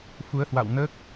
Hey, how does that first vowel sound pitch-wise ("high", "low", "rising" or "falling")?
rising